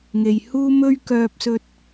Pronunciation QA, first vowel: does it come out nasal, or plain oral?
oral